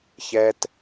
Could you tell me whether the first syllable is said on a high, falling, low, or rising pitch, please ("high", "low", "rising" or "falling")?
high